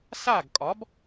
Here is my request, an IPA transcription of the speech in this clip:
s a˥˩ ɡ kʼ ɒ˩˥ b

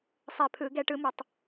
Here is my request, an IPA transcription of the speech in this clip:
sˤ ɛ˧˩ pʰ ɯ˨˩˦ ɡ ɛ˨˥ ʈ ɯ˨˥ m ʌ˨˩˦ tˤ

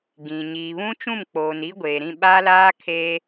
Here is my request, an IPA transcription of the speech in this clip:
ɡ ĩ˨ ɲ iː˨ β ũ˦ t͡ʃ ũ˦˨ m k͡p oː˨ n i˦ ɡʷ eː˨ ɾ ĩ˦˨ ɓ a˦ l aː˦ kʰ eː˦

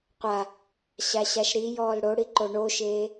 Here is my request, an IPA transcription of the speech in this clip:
qʷ a | ɕ a ɕ a ʃ ɾ i j ɔː l ɽ o ɽ i ǃ o ɳ o ʃ eː

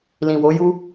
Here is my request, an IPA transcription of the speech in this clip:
l ĩ˨ w o˨˦ j u˦

